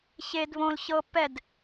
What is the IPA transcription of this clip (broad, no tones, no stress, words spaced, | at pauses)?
çed βõl çɤ pɛd